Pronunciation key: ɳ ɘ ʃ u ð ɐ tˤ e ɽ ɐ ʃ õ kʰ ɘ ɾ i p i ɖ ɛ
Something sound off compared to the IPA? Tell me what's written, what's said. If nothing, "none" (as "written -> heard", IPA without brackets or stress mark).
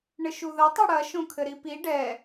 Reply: none